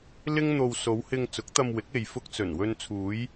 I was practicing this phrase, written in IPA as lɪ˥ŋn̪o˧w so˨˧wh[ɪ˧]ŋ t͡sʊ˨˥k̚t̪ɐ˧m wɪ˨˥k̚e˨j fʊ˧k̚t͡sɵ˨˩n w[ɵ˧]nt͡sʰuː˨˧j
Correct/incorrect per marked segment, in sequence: correct, correct

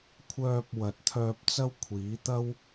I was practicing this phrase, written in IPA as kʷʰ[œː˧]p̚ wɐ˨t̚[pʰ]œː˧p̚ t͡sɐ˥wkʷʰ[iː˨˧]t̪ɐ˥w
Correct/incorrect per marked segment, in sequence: correct, incorrect: t̪ʰ, incorrect: iː˨˥

